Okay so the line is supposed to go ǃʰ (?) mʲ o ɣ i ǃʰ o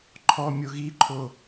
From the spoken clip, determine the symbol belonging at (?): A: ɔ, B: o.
A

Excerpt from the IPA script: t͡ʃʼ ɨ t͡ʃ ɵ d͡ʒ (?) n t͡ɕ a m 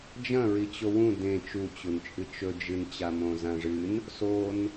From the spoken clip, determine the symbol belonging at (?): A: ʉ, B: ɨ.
B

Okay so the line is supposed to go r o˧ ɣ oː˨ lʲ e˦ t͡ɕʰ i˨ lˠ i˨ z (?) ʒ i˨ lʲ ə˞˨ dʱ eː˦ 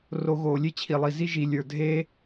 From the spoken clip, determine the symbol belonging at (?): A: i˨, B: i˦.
B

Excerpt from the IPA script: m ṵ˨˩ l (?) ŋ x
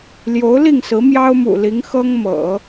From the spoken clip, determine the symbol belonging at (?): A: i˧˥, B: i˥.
A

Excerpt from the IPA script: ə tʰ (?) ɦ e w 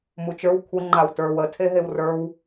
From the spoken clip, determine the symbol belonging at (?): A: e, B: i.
A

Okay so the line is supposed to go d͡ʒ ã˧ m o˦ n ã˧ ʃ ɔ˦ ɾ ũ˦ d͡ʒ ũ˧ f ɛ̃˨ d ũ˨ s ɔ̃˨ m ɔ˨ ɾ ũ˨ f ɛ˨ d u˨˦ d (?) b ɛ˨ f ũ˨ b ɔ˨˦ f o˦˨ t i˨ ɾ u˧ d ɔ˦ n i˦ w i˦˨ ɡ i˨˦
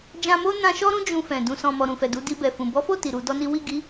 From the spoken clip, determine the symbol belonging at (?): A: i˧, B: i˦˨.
A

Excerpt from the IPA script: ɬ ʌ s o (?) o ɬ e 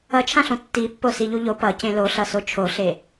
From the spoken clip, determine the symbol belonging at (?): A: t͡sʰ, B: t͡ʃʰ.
B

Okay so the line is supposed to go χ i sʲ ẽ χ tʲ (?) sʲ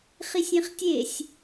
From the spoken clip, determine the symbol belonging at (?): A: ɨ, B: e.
B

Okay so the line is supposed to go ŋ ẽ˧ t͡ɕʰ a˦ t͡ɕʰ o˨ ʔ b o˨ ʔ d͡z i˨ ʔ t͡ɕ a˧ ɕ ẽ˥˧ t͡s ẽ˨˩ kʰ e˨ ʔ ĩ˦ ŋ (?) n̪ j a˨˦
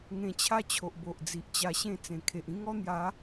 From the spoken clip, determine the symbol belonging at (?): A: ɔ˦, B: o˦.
A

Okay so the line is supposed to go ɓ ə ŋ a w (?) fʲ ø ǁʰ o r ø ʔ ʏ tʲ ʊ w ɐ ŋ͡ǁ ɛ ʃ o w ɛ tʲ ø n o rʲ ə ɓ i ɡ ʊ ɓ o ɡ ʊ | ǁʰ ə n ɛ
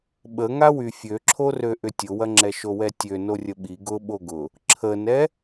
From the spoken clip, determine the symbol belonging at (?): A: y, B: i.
A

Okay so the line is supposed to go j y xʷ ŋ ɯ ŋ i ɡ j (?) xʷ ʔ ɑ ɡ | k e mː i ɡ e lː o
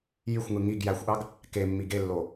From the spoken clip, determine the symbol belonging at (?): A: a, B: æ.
B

